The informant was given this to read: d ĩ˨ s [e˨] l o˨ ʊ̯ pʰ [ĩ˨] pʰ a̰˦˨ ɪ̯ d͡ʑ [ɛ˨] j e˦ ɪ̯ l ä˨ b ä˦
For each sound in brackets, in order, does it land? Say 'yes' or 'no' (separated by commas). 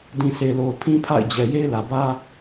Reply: yes, no, yes